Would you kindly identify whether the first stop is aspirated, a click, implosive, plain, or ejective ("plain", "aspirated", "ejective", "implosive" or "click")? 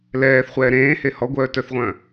plain